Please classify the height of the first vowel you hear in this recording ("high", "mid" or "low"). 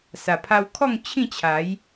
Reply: low